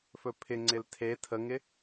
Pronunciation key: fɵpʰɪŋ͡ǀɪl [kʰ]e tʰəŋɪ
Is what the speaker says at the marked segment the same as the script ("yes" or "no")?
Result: no